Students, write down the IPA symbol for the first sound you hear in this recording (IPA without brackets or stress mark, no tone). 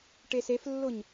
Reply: ʈ